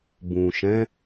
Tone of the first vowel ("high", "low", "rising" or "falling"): low